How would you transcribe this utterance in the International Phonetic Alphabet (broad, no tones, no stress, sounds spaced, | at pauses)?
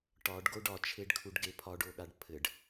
ʈ ɒ ɖ ɡ o ɖ ɒ t͡ʃʰ e ɖ kʰ u ɖ ɡ e pʰ ɒ ɖ o ɠ a ɖ pʰ ɘ ɖ